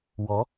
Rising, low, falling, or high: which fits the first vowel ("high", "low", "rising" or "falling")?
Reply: rising